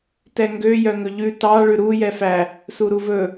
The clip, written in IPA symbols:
tɛŋɡø jœŋɵʎʉ tɑ ɭʉɾu jɛfæ | suɾuvɵ

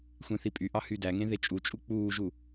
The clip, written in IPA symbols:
xʷẽθipʼyʔɑ hydæŋẽ ðet͡ʃʼut͡ʃʼu k͡puːʒu

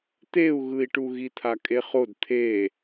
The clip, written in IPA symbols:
t̪eu̯ɣɯi̯ʈu ɣit̪ʰakʼeχod t̪ʰe

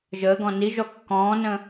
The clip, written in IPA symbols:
ʒəːɡɔ̃ niʒɔ kːɔ̃ːnə̃

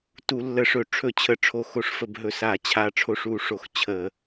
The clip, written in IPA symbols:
tu˧˩˧lːə˧˩˧ʂɵ˧˩˧ ʈ͡ʂʰɵ˧˩ t͡ɕʰə˧˩˧ʈ͡ʂʰo˧˩xo˧˩ʂfə˧˩˧b ɦɵ˧˩sa˧˩˧t͡ɕʰa˧˩ ʈ͡ʂʰo˧˩ʂu˧˩˧ ʂo˧˩x t͡ɕʰə˧˩˧

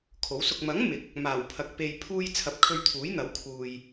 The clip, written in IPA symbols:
kʰo˨˥wsʊ˧k̚ mɐ˨˥ŋ mɪ˨˥k̚ | maː˨˩wpʰɐ˨k̚ pe˧j pʰuː˧j t͡sʰɐ˨˥p̚kʰɵ˧ɥt̪ʰuː˨˥jn̪ɐ˨˥w kʰuː˧j

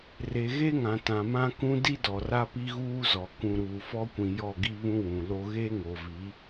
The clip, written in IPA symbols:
re˨ ɣe˦ŋã˨ tã˨mã˦kũ˦ di˦dɔ˨ra˦ pi˦ɣuː˦zɔ˨ kũ˨ɾuː˨fɔ˦kʷĩ˨ jɔ˦˨ɡi˦βũ˦ wũ˨lo˦ ɣe˦ ŋo˨vi˨˦

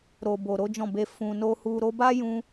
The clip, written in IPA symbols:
ɾo˨bo˨ ɾo˨˦d͡ʒɔ̃˦˨be˧ fũ˨ no˧hu˧ ɾo˧ba˦jũ˧

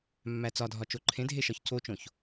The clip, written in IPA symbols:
mːæt͡sɒdʱɒ t͡ʃoǃʰẽdʱe ʃɒçcot͡ʃõç

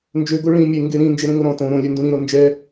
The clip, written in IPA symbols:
nd͡ʒøɡo ɭĩ mʲe ŋɡeɾĩ nd͡ʒeɾẽŋoɾɔ̃ tõ ɾõlʲøndũ ɾĩɾo nd͡ʒɛ

